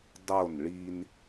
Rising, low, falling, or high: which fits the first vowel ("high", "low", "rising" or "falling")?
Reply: falling